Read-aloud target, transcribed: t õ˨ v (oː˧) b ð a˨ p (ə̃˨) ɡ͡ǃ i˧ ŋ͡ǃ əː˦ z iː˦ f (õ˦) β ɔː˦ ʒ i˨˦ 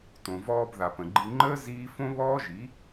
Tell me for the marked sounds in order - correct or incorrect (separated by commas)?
incorrect, correct, correct